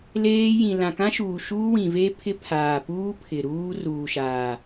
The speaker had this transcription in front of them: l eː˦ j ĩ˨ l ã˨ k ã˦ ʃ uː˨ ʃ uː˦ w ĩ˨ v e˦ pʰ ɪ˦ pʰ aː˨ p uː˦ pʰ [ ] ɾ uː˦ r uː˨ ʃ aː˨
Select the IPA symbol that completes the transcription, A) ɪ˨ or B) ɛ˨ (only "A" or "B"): A